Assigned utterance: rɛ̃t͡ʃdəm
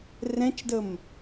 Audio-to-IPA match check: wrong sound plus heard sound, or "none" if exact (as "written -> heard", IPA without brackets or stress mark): none